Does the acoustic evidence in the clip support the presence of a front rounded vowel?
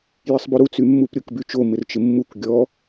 yes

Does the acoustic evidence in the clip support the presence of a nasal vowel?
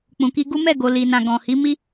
yes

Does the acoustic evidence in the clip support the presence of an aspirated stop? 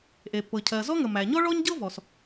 yes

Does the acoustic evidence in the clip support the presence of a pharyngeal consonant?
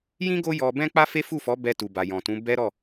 no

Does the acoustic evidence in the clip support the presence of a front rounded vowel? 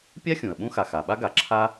no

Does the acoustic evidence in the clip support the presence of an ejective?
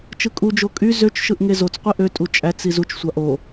yes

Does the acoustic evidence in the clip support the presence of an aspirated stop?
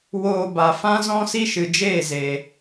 no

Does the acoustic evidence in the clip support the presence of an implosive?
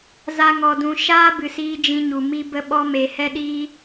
yes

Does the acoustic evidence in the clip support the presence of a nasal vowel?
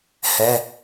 no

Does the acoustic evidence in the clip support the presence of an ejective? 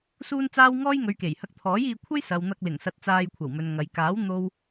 no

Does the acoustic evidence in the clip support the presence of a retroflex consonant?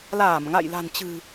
no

